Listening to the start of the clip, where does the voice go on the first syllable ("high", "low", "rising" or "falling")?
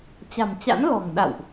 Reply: low